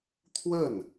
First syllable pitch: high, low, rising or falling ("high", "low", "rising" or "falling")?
falling